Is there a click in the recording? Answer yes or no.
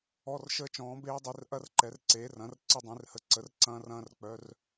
yes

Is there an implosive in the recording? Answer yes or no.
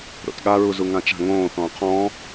yes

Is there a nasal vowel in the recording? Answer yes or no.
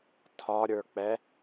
no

